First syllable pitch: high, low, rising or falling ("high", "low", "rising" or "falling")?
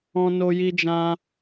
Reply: high